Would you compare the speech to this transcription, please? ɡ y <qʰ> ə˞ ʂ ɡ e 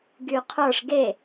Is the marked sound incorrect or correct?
correct